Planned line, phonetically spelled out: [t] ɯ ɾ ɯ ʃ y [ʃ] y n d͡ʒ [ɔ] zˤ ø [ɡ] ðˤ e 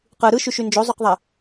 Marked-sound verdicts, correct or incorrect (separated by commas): incorrect, correct, incorrect, incorrect